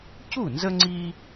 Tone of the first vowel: falling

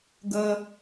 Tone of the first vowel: high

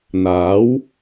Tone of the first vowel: rising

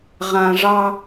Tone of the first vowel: low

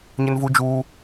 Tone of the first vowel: high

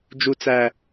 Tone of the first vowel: low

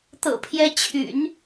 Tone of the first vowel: low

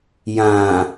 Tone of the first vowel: low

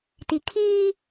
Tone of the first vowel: low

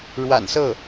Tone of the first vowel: low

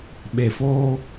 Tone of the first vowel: low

